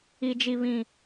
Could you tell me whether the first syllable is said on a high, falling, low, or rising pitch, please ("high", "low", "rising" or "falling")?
low